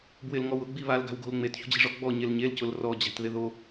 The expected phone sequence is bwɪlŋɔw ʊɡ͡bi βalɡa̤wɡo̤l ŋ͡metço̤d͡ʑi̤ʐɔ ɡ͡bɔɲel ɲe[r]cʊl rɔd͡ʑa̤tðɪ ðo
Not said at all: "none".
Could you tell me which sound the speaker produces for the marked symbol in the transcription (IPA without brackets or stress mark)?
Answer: l